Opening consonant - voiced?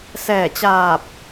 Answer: no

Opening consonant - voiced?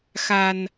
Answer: no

